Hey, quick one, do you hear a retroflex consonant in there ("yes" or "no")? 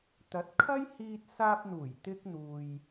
no